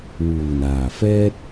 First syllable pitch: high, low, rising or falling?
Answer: low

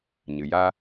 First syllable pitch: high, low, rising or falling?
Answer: low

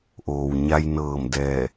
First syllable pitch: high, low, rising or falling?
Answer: low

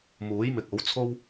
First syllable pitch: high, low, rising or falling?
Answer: rising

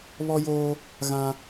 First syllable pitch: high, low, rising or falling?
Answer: high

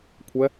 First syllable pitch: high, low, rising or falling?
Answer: rising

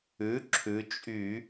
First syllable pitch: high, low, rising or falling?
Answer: rising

